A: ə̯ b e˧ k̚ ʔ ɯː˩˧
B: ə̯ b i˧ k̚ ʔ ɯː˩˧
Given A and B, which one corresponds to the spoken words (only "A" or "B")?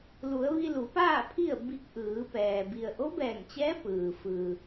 B